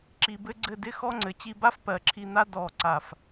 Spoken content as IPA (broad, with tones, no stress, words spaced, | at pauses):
ǁi˧bɘ˥ɡ͡ǀɘ˥˧ dɪ˥xɔ˥ ŋ͡ǀɘ˩˧t͡ɕi˥ ba˥fpɜ˩˧ǁʰi˧n̪a˥ dɔ˧˩ ǀa˧˩f